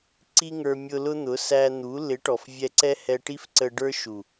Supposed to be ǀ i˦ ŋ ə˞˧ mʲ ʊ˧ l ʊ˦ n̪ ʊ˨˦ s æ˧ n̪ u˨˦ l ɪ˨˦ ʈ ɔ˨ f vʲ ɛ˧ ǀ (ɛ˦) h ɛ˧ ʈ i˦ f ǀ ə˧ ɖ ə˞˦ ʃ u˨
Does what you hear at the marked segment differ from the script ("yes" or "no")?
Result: no